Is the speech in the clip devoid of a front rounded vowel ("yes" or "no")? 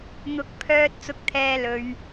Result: no